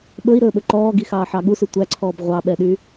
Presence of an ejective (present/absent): absent